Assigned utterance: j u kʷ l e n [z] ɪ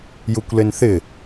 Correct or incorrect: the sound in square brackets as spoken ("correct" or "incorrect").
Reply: incorrect